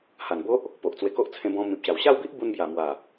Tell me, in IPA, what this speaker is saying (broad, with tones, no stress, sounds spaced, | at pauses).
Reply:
h a˨˩ n b o˦ ʔ | p o˨ ʔ t͡s w e˧ k o˦ ʔ t͡sʰ ẽ˧ b ɔ̃˧ m ĩ˨ p̚ ɕ a˨˩ w ɕ a˥˧ w b i˦ ʔ b u˧ n b j a˨˩ m w a˨˩